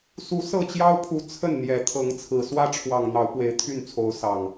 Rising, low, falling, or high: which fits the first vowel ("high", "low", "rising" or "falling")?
rising